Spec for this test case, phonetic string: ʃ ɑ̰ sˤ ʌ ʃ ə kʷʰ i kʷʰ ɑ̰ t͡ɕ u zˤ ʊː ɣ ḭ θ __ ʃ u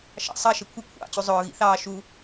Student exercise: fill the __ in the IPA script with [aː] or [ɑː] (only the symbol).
ɑː